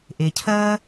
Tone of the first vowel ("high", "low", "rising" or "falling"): low